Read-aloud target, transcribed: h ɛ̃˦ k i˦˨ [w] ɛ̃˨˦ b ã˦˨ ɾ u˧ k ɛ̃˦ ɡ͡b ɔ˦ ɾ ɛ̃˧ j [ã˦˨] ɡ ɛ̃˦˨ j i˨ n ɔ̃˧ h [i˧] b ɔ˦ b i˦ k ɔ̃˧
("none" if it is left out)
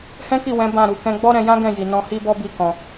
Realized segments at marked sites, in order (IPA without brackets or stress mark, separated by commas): w, ã˦, i˦